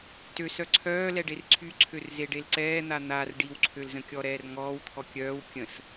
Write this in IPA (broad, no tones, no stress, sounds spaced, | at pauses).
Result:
t ø s œ ǀʰ œː l ɛ ɖ e r ǀʰ y ǀʰ ø r z e ɖ e l ǀ ɛː n̪ a n̪ a r ɖ i w ǀʰ ø l z ə̃ kʲ ɔ ɾ ɛː r ŋ ɔː w t̪ʰ ɔ kʲ œː w kʲ ə̃ s